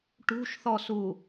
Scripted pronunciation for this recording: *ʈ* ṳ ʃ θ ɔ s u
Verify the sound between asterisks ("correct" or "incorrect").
correct